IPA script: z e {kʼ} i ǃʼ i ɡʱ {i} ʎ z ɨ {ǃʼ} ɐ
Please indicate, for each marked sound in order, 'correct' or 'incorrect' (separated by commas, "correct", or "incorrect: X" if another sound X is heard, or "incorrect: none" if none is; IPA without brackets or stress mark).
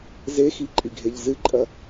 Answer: incorrect: x, incorrect: e, correct